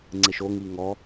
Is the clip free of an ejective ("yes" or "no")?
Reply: yes